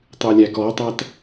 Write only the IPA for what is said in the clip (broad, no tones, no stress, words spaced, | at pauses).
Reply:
tˤɨlʲækɔtˤæt